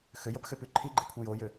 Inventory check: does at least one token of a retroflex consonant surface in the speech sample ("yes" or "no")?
no